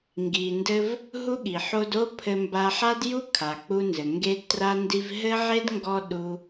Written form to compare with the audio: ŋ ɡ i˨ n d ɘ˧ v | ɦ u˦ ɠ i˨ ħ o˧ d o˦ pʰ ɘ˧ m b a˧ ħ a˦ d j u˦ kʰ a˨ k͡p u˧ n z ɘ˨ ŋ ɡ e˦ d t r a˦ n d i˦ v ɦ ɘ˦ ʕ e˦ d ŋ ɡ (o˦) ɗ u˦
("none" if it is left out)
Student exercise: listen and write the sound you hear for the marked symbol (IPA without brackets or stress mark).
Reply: ɔ˦